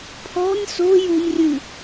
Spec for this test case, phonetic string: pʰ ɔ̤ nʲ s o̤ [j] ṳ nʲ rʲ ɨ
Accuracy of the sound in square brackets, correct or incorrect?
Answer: correct